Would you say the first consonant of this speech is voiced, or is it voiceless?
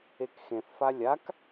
voiceless